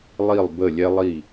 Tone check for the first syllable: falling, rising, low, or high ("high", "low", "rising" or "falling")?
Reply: falling